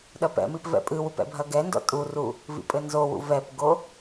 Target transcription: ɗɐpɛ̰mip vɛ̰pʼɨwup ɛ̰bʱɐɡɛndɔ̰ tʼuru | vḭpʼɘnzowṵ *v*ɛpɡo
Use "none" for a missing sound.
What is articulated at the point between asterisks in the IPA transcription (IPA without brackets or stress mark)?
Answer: v